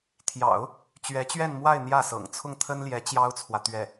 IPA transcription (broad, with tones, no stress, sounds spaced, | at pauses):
t̪ʰ j ɑ̰˨˩˦ ʊ̯ | t͡ɕ ɥ ɛ˧˥ t͡ɕ ɥ ɛ˥˧ n m w a˥˧ ɪ̯ n̪ j ä˥˩ s ɤ̰˨˩ ŋ t͡sʰ ʊ˥˩ ŋ t̪ʰ ə˥ n l j ɛ˧˥ t͡ɕ j ɑ˥ ʊ̯ t͡sʰ w ä˨ t̪ ɥ ɛ˥˩